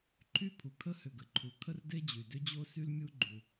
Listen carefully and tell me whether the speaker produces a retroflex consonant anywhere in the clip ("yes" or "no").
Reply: no